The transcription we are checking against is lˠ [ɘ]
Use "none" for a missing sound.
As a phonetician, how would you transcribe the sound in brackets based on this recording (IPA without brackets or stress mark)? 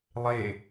e